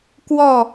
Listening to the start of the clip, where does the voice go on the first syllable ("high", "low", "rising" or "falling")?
falling